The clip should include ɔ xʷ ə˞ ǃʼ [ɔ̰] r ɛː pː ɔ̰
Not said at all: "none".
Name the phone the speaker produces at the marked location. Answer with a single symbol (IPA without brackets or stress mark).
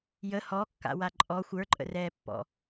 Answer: ə̰